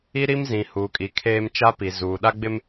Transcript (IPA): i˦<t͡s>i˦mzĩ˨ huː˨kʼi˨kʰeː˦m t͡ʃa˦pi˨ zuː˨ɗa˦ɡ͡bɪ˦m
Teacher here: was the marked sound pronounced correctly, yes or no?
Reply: no